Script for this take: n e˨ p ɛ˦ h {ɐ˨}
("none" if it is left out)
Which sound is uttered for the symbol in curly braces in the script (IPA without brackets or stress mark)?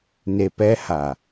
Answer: a˨